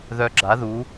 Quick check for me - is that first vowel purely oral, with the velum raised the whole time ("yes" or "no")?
yes